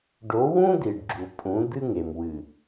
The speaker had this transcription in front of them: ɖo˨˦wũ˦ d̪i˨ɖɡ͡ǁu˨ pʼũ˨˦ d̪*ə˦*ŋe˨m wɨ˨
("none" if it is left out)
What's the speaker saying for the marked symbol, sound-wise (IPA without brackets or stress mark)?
ɨ˦